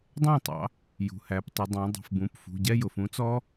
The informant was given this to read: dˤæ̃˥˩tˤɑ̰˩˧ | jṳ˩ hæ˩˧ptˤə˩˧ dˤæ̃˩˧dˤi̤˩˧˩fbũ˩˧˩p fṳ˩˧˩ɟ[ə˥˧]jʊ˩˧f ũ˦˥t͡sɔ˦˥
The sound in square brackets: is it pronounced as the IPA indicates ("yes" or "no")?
no